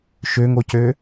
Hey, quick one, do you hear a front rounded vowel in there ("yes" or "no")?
yes